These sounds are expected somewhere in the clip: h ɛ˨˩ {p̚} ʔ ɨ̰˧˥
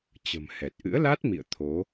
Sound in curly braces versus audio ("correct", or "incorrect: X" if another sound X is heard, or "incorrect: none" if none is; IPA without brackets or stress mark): incorrect: t̚